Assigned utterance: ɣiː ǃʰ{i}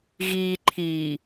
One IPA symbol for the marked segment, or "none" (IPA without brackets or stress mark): i